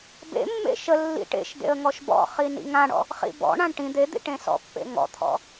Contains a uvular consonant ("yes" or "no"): yes